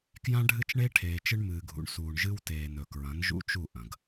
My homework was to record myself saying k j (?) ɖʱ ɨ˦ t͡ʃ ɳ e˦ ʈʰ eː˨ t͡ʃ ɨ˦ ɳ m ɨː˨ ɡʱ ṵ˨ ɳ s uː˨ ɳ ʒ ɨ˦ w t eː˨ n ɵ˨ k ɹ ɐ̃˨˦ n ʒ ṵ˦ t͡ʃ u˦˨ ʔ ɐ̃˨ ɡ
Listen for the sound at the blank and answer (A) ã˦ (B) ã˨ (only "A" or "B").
A